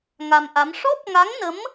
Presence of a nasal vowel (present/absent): absent